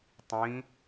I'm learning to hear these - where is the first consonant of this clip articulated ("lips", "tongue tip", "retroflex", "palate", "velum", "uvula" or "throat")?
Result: tongue tip